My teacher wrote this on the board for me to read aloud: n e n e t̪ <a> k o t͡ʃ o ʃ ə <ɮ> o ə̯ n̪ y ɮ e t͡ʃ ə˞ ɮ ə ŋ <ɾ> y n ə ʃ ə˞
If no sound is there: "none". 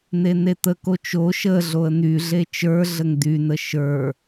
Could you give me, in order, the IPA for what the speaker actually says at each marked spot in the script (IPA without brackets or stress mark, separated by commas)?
ə, ɮ, d̪